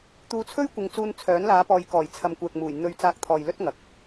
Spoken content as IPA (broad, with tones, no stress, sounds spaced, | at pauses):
t̪ uː˨˧ t͡sʰ ɵ˥ ɥ kʷ ɪ˨˧ ŋ t͡s uː˧ n t͡sʰ œː˨˥ n l aː˨˧ p ɔː˨ j k ɔː˨˩ j t͡sʰ ɐ˨ m kʷ ɛː˨ k̚ m uː˨˩ j n̪ ɵ˧ ɥ t͡s aː˧ k̚ t̪ʰ ɔː˨ j l ɵ˥ t̚ ŋ ɐ˨ k̚